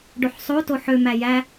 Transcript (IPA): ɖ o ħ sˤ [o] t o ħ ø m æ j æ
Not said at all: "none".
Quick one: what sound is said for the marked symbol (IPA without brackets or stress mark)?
o